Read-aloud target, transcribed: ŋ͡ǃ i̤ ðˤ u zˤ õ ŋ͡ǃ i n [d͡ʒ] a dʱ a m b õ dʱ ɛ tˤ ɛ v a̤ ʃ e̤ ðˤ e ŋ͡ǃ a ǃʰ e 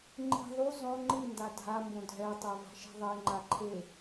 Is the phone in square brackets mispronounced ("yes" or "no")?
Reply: yes